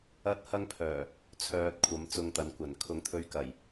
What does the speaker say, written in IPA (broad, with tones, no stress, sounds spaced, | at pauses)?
ɐ˥ t̚ h ɐ˥ ŋ pʰ œː˨˩ | t͡sʰ œː˧ t̚ kʷʰ ɐ˨˥ m t͡s ʊ˧ ŋ t̪ ɐ˨˧ n kʷ ɐ˨˩ n kʰ ʊ˨˥ ŋ t̪ʰ ɵ˧ ɥ k ɐ˨˩ j